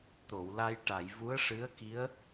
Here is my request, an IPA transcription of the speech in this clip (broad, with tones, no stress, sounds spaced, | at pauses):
t̪ o˨˩˨ w l a˧ j ʈ a˨˩˨ j v u˧˥ ə̯ ʂ ɨ˧˥ ə̯ k i˧˥ ə̯